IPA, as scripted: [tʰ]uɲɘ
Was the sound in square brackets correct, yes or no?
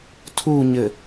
yes